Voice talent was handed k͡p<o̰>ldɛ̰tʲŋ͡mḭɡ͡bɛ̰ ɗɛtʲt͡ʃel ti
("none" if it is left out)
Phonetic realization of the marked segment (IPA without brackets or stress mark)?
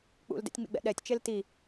ṵ